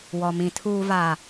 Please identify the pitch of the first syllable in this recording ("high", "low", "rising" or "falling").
low